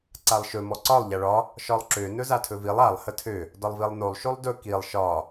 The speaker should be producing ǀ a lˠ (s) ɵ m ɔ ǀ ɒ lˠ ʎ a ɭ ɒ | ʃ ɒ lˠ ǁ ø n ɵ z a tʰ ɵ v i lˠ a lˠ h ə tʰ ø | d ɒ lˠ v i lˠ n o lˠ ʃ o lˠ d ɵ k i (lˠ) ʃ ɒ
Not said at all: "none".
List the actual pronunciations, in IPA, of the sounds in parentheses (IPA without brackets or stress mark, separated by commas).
ʃ, lˠ